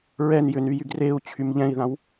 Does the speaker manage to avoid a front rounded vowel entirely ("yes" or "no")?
no